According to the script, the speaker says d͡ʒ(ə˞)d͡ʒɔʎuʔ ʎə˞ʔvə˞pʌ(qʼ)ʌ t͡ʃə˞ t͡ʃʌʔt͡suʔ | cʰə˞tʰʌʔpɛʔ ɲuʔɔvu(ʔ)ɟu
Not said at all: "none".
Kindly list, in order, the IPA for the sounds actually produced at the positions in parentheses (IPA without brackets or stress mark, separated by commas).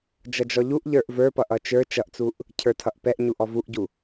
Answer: ʌ, ʔ, ʔ